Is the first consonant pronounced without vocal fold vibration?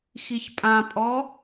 yes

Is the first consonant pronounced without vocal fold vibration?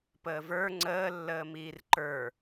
yes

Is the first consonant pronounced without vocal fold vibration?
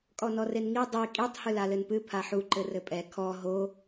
yes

